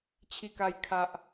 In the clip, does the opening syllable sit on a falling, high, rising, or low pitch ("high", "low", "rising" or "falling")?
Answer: low